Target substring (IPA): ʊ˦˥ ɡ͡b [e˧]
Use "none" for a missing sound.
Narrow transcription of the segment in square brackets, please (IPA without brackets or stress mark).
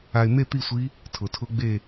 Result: e˥˧